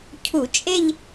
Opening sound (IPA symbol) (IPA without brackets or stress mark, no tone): cʰ